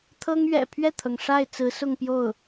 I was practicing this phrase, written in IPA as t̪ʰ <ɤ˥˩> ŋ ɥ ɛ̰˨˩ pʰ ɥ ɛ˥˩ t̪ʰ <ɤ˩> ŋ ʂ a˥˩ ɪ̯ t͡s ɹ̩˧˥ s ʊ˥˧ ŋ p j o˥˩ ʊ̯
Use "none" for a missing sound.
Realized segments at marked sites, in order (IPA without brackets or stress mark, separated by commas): ɤ˥, ɤ˩